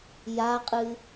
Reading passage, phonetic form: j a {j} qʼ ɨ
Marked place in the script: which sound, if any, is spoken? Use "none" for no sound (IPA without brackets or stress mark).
none